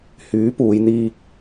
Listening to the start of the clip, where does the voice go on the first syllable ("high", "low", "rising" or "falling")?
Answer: rising